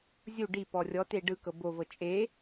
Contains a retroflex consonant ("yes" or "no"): yes